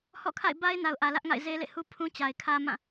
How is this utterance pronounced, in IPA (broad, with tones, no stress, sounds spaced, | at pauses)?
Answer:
h ɔ̰˦˨ kʰ a̰˦˨ ɪ̯ b a˦ ɪ̯ n a˨ ʊ̯ ʔ ä˨ l ä˦ ʔ ŋ a̰˦˨ ɪ̯ z e˦ l ḛ˦˨ h u˦ pʰ ũ˦ t͡ɕ a˨ ɪ̯ kʰ ä˦ m ã˦˨